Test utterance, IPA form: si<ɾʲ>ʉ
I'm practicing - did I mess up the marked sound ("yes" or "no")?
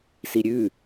no